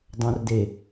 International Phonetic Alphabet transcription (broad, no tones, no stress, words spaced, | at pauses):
dˤõrde